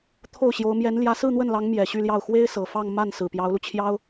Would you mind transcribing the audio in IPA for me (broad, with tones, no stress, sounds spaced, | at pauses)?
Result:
t̪ʰ o˥˩ ʊ̯ ɕ j o˧˥ ʊ̯ m j ɛ˧˥ n l j ä˧˥ s ɹ̩˥˧ n̪ w ə˥˩ n l ɑ˧˥ ŋ m j ɛ˨˩ ɕ y˥˧ l j ɑ˥˩ ʊ̯ x w e˥ ɪ̯ s ɤ˨˩ f ɑ˥˧ ŋ m a˥˩ n s ɹ̩˨˩ p j ɑ˧˥ ʊ̯ l u˧ t͡ɕʰ j ɑ˥ ʊ̯